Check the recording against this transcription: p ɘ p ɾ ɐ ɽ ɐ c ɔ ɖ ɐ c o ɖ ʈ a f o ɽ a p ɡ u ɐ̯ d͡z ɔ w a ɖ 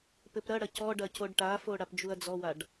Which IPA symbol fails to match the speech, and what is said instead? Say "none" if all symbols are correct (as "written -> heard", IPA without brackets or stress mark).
ɡ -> d͡ʒ